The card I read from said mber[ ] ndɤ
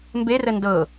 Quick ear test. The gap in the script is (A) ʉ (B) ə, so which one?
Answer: B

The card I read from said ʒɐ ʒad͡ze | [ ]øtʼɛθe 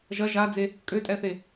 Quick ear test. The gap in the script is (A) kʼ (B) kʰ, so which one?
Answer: A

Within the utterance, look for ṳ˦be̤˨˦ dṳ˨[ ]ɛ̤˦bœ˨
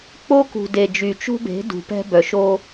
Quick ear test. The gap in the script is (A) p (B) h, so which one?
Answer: A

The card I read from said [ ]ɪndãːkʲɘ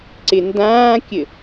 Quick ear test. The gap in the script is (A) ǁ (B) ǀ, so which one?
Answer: B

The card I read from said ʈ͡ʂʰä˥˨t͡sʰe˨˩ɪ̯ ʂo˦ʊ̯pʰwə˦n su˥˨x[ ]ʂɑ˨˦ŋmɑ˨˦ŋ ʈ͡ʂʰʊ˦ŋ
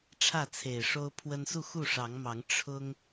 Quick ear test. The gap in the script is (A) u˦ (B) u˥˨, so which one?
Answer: B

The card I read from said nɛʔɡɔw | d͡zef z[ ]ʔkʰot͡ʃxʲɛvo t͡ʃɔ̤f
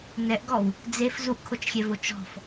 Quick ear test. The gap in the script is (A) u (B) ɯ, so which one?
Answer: A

